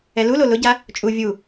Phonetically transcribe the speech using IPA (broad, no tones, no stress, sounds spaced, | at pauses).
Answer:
ɛ l u l o l ʊ ɟ a | t͡ʃʼ u vʲ u